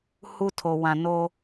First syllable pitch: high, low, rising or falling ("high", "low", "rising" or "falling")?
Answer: high